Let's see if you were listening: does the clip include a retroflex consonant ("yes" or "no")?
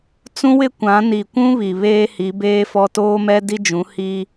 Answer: no